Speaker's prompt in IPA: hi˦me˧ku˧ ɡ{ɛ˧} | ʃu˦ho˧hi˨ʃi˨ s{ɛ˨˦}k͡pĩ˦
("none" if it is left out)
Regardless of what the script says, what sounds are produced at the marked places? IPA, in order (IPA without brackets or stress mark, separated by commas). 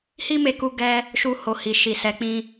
ɛ˧, ɛ˨˦